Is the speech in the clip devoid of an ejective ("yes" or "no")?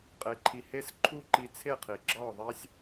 no